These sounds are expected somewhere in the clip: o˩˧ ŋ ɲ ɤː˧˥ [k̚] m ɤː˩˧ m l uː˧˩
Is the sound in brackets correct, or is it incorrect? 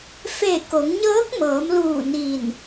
correct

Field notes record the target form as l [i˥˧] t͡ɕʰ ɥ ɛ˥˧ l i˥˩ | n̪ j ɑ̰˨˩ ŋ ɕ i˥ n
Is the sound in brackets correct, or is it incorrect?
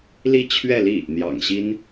correct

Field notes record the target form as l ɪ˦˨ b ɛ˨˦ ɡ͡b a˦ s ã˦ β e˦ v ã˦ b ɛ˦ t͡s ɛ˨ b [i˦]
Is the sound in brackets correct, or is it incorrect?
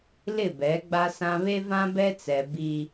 correct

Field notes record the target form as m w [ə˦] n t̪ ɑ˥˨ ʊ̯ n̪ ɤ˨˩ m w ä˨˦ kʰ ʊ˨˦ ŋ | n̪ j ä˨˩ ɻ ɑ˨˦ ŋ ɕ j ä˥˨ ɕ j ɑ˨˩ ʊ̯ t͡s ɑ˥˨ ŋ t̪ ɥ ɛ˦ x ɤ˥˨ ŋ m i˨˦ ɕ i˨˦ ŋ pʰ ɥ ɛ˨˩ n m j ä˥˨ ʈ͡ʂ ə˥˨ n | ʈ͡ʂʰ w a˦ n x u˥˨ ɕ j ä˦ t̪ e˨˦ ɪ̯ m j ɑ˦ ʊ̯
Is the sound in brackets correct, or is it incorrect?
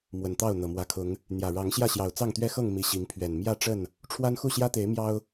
incorrect: ə˨˩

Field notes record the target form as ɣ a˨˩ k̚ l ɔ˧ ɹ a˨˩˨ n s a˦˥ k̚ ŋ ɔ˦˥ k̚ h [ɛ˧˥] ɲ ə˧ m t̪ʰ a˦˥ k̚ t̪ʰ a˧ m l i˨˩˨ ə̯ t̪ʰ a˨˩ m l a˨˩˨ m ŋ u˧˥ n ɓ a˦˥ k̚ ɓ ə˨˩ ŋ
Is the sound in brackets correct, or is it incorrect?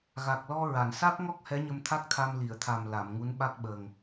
correct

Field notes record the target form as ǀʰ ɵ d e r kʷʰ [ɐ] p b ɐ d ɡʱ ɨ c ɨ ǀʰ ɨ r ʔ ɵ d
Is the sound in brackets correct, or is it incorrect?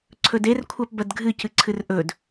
incorrect: a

